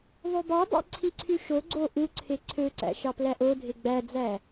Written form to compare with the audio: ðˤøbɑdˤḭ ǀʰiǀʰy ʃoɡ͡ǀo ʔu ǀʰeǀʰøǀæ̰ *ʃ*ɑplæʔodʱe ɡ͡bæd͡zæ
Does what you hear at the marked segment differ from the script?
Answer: no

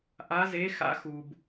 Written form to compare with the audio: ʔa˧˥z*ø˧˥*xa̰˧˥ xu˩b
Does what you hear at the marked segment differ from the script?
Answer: yes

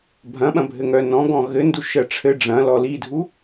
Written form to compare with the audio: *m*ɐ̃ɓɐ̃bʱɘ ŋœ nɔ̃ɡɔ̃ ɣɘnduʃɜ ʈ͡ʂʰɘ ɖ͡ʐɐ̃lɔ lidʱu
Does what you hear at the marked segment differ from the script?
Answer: yes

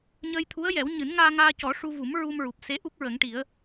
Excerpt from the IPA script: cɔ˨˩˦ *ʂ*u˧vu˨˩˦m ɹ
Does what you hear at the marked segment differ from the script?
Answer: no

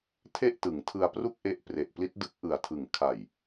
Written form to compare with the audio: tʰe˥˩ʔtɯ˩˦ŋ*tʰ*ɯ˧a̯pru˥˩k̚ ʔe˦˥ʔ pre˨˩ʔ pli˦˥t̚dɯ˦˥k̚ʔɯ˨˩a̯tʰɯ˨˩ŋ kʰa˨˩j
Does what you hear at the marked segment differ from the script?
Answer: no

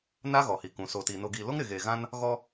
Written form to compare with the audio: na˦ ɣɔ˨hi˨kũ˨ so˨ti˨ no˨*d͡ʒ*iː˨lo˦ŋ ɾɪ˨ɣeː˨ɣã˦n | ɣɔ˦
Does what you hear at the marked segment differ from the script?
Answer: yes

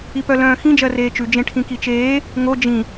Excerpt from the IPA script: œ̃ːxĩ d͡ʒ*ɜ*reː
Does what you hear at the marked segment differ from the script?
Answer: no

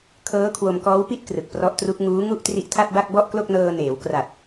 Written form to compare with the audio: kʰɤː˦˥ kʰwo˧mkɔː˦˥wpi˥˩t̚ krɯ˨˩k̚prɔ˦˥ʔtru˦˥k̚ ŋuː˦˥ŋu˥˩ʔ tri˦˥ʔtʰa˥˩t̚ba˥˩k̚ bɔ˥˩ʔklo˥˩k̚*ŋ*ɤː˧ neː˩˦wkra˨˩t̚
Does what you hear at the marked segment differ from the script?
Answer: yes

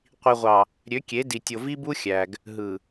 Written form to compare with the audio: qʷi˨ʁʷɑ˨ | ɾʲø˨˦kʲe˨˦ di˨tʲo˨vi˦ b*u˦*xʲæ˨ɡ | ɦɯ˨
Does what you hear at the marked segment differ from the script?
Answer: no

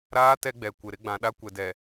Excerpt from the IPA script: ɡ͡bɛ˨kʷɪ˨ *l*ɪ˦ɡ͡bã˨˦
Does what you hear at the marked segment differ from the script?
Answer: yes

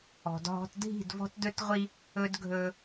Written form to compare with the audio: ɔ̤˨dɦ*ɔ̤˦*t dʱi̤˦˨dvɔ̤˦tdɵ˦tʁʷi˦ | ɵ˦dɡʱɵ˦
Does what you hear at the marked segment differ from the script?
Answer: no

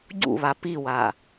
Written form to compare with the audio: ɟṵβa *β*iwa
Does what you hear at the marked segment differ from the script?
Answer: yes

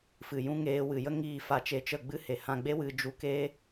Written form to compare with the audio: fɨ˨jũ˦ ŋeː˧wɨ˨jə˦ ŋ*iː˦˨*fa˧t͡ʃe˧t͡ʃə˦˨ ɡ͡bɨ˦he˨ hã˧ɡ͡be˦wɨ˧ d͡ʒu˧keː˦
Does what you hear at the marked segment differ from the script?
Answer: no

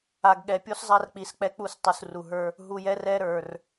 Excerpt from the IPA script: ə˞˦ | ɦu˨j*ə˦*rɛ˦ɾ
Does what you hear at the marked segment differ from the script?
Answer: yes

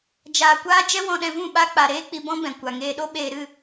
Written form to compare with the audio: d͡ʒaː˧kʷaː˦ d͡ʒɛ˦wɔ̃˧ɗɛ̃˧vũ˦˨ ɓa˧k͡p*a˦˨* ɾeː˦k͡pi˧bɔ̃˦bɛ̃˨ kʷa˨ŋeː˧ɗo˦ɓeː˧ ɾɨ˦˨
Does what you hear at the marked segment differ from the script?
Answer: yes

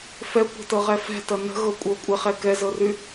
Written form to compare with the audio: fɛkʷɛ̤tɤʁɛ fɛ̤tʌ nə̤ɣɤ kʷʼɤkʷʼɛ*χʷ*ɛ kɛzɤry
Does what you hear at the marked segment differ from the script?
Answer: yes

